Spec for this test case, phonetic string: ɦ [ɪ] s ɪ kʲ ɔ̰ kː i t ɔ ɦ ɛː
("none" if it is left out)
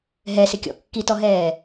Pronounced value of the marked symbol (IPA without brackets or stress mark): ɛ